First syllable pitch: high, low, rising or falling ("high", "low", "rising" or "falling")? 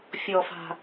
low